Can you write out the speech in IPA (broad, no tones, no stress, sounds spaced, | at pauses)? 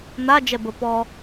n̪ a d͡ʒ ɛ b ə p ɔ